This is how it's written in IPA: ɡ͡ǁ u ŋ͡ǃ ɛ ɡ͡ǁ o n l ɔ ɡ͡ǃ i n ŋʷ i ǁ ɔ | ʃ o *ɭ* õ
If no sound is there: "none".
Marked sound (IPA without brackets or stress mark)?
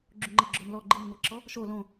l